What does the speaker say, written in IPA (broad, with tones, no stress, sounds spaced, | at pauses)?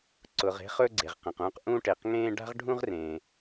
ǀ ʊ˩ ʁ e̤˧ χ ɵ˧ ɡ͡ǀ e˩ ʁ q ẽ˩ q ũː˧ q ʔ ũ˧ ʈ e˩ q ŋ ẽː˧ ɖ a̤˧ ʁ ɖʱ ũ˧ ʁ r ẽː˩